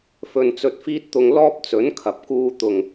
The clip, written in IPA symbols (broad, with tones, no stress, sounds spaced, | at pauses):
f ɵ˧ n t͡s ɵ˧ t̚ f iː˥ t̚ t̪ ʊ˧ ŋ l ɔː˥ p̚ t͡s ɵ˨˥ n kʰ ɐ˨ p̚ k uː˧ t̪ ʊ˨˩ ŋ